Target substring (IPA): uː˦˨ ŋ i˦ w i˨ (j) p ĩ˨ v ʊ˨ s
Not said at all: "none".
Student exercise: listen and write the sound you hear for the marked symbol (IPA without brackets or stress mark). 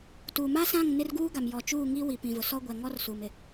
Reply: none